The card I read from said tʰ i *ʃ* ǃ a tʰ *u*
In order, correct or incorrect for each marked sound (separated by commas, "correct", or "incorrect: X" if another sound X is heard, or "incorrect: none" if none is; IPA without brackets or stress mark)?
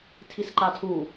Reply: incorrect: s, correct